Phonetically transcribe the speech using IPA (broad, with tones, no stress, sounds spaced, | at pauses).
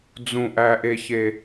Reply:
d͡z ũ˨ ʔ æ˨ ʔ e˨ ç e˨